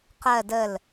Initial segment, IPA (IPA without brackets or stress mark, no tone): q